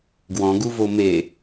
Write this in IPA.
ɡ w ɔ̃ ɡ u v o m e

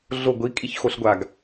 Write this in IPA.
ɮ o ɡʷ i kʼ i ç x o ɬ ɡʷ a ɡ

